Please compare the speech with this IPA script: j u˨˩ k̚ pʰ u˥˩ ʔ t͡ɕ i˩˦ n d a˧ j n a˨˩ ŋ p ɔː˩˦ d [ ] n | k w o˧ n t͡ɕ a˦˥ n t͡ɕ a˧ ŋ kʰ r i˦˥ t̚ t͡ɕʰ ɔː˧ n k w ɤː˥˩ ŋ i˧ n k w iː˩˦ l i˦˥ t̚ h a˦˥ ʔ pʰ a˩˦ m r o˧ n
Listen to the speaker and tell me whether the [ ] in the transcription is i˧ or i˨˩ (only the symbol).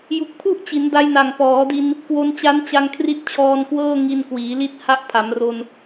i˧